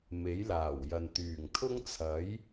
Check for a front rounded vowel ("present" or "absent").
present